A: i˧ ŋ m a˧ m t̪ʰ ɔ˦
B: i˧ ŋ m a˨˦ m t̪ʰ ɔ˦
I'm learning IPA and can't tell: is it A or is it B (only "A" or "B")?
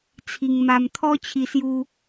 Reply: A